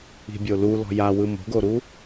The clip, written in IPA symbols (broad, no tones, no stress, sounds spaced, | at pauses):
i̤ bʲ o l u l ɔ̤ j a w ɯ m o̤ ɡ o ɾ u